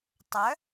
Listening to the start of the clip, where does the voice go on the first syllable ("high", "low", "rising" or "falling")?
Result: rising